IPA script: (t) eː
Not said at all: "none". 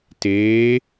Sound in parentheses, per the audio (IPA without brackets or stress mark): t